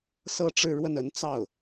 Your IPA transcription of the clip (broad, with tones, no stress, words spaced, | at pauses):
sɤ˥ ʈ͡ʂɻ̩˥˧ɻwə˥˩n ə˧˥n t͡sɑ˥˩ʊ̯